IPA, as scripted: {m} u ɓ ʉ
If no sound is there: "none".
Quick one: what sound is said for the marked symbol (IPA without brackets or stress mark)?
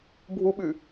bʱ